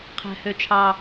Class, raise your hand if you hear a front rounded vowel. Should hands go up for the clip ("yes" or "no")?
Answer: yes